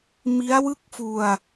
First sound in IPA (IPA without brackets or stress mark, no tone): m